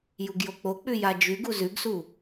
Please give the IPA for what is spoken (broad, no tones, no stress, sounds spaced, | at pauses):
j u ɡ j o k͡p o k͡p ʉ j a d͡ʒ ʉ ɡ u z ʉ ɡ s u